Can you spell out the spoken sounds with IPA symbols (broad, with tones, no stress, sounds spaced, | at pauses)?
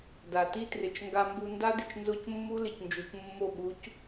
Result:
d a˨ t i˦ t r ɪ˨ t͡ʃ ŋ ɡ a˧ m b u˧ n d a˦ d ɪ˨ t͡ʃ n z o˦ c mː u˦ l ɪ˨ c n d͡ʒ u˨ c mː o˦˨ ɓ u˨˦ c